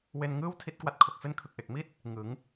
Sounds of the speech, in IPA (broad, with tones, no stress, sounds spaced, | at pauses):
w e˧ n ŋ ɯː˥˩ w tʰ i˦˥ t̚ k w a˦˥ t̚ kʰ o˨˩ k̚ f e˥˩ n kʰ ɯ˨˩ k̚ ʔ e˨˩ k̚ m i˥˩ t̚ | ŋ ɯ˩˦ ŋ